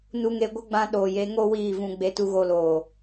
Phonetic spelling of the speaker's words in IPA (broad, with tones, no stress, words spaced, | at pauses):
nu˧ŋe˧ ɡʷə˦ ɡ͡bã˧ ɗoː˨je˨˦ŋo˦ wiː˦˨vũ˧ ɡ͡be˧tu˧ɣo˧loː˨